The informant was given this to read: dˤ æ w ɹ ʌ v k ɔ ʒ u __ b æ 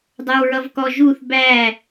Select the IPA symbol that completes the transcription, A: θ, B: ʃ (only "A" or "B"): A